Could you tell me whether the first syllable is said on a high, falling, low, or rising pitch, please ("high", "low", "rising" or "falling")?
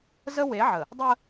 high